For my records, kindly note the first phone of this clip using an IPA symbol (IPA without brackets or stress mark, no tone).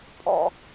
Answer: pʼ